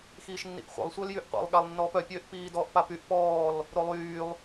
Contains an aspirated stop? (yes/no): no